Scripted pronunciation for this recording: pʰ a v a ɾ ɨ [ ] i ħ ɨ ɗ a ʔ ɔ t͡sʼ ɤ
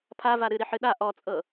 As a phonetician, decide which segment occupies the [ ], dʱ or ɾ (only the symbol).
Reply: ɾ